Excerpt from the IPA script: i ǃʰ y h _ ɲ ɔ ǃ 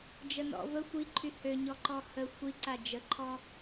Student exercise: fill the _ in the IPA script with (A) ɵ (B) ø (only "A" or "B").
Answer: B